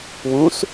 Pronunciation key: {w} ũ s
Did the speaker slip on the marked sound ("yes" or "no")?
no